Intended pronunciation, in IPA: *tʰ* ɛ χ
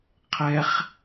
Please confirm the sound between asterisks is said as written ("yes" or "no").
no